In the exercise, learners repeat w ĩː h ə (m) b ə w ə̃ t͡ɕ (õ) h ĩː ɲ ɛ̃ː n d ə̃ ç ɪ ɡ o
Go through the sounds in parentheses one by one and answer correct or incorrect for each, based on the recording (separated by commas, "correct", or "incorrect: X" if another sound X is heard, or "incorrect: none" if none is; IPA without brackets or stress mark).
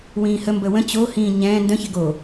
correct, incorrect: o